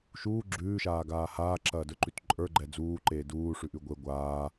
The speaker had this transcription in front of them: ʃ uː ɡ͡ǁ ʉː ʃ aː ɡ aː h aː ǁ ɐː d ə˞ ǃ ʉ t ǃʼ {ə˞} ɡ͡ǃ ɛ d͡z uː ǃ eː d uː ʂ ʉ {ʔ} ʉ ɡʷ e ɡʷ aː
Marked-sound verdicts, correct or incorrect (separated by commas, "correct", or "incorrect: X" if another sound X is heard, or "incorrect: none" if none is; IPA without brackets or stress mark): correct, correct